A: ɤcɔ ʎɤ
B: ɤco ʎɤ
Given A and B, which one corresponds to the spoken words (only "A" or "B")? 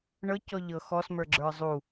A